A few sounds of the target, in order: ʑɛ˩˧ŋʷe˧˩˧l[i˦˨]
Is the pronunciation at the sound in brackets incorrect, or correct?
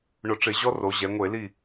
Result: correct